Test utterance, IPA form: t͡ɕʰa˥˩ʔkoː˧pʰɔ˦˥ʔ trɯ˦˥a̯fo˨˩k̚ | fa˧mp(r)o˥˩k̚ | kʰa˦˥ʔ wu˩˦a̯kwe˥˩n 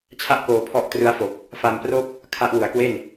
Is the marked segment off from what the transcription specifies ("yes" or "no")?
no